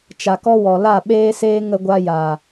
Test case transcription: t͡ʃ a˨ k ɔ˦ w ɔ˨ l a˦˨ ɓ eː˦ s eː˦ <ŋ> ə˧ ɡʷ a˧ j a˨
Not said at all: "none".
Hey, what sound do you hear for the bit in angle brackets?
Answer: ŋ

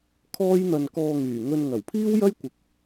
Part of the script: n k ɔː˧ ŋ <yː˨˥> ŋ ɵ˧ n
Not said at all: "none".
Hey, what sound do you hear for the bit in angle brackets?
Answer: yː˨˩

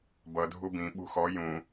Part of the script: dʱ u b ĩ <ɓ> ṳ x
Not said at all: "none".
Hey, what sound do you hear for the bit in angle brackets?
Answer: ɓ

